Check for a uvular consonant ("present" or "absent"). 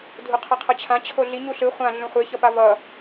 present